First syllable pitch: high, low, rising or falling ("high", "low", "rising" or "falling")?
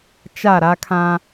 falling